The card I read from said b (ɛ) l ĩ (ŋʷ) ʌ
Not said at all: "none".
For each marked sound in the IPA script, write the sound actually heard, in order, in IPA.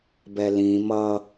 ɛ, m

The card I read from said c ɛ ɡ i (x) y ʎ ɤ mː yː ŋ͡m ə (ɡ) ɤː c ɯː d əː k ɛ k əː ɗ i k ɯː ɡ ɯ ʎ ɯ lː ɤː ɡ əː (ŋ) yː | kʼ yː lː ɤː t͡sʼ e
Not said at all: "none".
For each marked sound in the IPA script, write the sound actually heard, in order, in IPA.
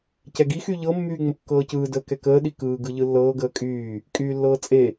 x, kː, kʼ

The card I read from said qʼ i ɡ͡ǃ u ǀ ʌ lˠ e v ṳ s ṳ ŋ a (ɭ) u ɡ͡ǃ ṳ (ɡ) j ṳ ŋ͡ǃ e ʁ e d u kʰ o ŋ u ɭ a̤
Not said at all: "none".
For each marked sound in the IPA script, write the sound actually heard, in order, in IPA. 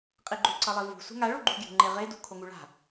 ɭ, ɡ

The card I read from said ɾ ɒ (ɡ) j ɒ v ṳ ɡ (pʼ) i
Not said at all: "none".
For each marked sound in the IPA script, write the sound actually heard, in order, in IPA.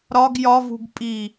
ɡ, pʼ

